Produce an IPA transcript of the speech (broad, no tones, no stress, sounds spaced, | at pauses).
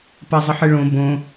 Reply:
p a zˤ ə ħ ɨ ɭ õ b õ